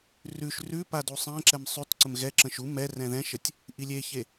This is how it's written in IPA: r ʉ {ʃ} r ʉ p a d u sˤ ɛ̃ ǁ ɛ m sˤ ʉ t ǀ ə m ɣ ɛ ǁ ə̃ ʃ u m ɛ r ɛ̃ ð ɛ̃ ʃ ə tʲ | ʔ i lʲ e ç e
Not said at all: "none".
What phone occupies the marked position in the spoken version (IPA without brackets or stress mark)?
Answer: ʃ